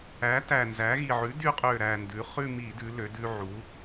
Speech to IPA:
æ˩˥ t æ˨˩ n z æ˩˥ ɣ i˨˩ ʕ ʉ˩˥ d y˧ qʼ ø˨˩ ɾ æ˨˩ n d ʉ˩˧ χ ʉ˥˧ m i˧˩˧ d ʉ˩˧ l ø˩˧ d ʉ˧ ʕ u˩˥

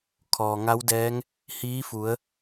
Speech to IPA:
kʰ ɔː˩ ŋ a˧˥ w d ɛː˧˥ ŋ | h iː˧˥ f u˩˧ ə̯

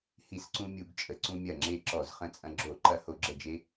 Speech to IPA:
h i˧˩˧ s ǀ ũ˧ mʲ u˧˩˧ ɡ t͡ʃʼ ə˩˧ ǀ ũ˧ mʲ ɐ˧˩ ŋ͡ǁ e˧˩ ǁ ɔ˧˩˧ z χ ə̃˧˩ t͡sʼ ɐ̃˧ ɡ͡ǁ o˧˩˧ ǃ ɐ˧ h o˧˩˧ ɡ͡ǁ ə˧˩ d͡ʒ e˧

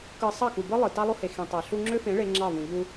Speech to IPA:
k ɯ˧ sˤ ɑ˦˨ k u˨ b ɯ˦ lˠ ɯ˨ t ɑ˦ lˠ o˦ h e˨ x ĩ˨ tˤ ɑ˨ ɬ u˧ ŋ͡ǁ ø˦ f ẽ˨˦ ɭ e˦ ŋ͡ǁ ɑ˦˨ v ũ˨ ʎ u˧

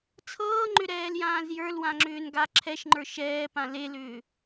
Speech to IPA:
t͡sʰ ɤː ŋ͡ǃ ʏ ɾ ɛː l j ãː z j ə˞ l w ã ŋ͡ǁ ʏː n ɡ a ǁʰ ɛ ʃ ŋ͡ǃ ə˞ ʃ ɛː p ã l e l ʏː

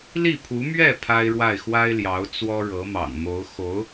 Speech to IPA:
l i˥˩ pʰ u˧˥ m ɥ ɛ˥˩ pʰ a˥ ɪ̯ ɻ w a˥˩ ɪ̯ x w a˥ ɪ̯ l j ɑ˧˥ ʊ̯ t͡s w ɔ˥ ɻ ɤ˧˥ m ɑ̰˨˩ ŋ m o˧˥ ʊ̯ x o˧˥ ʊ̯

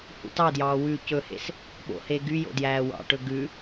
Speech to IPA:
h ṵ t ɑ d j ɑː w ʉ c ɵ h ḛ s | ɓ o̰ h e ɡ y j o̰ d j æː w ɑ̰ ʈ ɵ ɡ ʉ

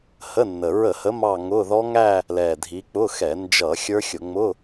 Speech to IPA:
h ə˧˥˧ nː ə˨˩ ɹ ə˧˩˧ h ə˨˦ m ɑ˥˧ ŋ ʊ˧˥˧ ð ɔ˦˥ ŋ æ˥˧ | l ɛ˨˩ dʱ i˨˦ k͡p ʊ˧˥˧ x ɛ˧˩˧ n d͡ʒ ʌ˧˩˧ xʲ ə˞˦˥ xʲ ʊ˧˩˧ ŋ͡m ʊ˧˥˧

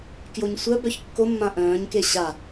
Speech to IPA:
k j o ɲ sʷ œ b œ ç kː o mː ã ʔ œ̃ː ɲ k e ɕ a

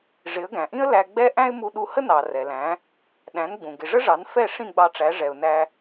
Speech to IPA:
ʐ ɪ˩˥ ə̯ ɡ æ̃˩ ʔ ĩ˥ ə̯ l æ˧ ɡ͡b ɛ˥ ʔ æ̃˥ ɪ̯ m u˧ ɗ u˧ h ə˥ n ɑ˩ r ɛ˩ l æ̃˩˥ | ɗ æ̃˩˥ n ɡ͡b ũ˩ ɡ ɪ˩ ʐ ə˥ ʐ ɑ˩˥ n f ɛ˥˩ ʂ ĩ˥˩ ɡ͡b ɑ˧ ʈ͡ʂ æ˩˥ ʐ ɛ˩ ʊ̯ n æ˧

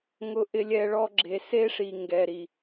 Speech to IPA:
ŋ ʊ˨ ʔ ɪ˨ lʲ ɛ˨ ɭ ɔ˧ ɡ͡ǁ e˨ s e˦ ʂ i˨ ŋ ɡ ɛ˨ ɾ i˨

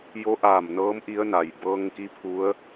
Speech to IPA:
j o˧˥ ʔ aː˧˩ m n ɤː˧˥ m ʔ i˧˥ ə̯ n a˩ j b ɤː˧ ŋ k i˧˥ pʰ u˧˥ ə̯

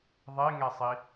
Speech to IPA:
ðˤ e ŋ ɛ sˤ i

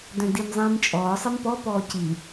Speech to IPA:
d œ̃ d i m zˤ ĩː m t͡ʃʼ ɔː sˤ e m p ɔ p ɔː c i

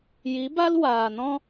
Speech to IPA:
j i˨˦ b a˦ l w aː˨ n ɔ̃˦

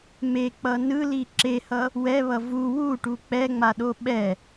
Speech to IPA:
m e k͡p ʌ n ɯ l i ǁ e h ʌ | w ɛ β ʌ v u w u ʈ u k͡p ɛ ŋ͡m a ɗ o ɓ ɛ

